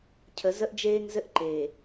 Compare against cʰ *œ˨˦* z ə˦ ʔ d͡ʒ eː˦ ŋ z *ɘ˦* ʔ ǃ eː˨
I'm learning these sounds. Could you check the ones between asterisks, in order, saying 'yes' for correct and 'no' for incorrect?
no, yes

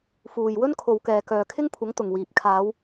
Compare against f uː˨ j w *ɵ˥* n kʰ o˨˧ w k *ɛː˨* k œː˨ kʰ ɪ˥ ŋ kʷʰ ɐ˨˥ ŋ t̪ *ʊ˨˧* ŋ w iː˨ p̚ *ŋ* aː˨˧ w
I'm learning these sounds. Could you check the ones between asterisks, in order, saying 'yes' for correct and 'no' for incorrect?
yes, yes, no, no

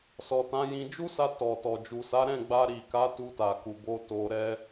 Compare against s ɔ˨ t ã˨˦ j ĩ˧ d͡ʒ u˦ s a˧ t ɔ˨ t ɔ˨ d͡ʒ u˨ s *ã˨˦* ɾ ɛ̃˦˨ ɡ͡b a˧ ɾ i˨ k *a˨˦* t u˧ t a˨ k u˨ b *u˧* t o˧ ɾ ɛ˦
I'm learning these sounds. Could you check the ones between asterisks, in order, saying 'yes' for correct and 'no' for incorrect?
no, yes, no

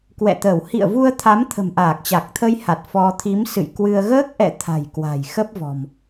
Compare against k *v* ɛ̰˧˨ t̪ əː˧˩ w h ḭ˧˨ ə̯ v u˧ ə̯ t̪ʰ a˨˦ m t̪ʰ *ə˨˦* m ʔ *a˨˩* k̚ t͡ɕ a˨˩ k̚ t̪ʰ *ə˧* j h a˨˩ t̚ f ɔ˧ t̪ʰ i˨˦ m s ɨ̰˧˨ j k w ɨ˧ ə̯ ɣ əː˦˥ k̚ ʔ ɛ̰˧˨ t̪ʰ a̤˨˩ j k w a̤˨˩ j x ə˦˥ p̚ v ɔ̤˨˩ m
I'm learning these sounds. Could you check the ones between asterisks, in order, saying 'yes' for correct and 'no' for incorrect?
no, no, no, yes

